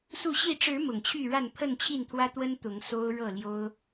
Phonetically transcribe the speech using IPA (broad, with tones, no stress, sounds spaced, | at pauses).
s u˥˨ ɕ i˥˨ ʈ͡ʂ ɻ̩˨˦ m ʊ˨˩ ŋ t͡ɕʰ y˥˨ ɻ a˥˨ n pʰ ə˥˨ n t͡ɕʰ i˥˨ n t̪ʰ w ä˦ t̪ w ə˦ n t̪ ʊ˨˦ ŋ s o˦ ʊ̯ ɻ ɤ˥˨ l j o˦ ʊ̯